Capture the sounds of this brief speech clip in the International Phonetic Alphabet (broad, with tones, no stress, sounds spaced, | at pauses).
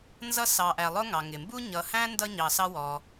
n z ʌ˦ s ɑ˨ ʔ æ˨ lˠ ʊ˦ ŋ ɑ˩ ŋ ɪ˩ m b u˦ ɲ ʌ˨ h æ̃˥ n d ʌ˦ ɲ ɑ˨ s ɑ˦ w ɔ˨